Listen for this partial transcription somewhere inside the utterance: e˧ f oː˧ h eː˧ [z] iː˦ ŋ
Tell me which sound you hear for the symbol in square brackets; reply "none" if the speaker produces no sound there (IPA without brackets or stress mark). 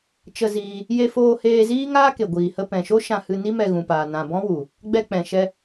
z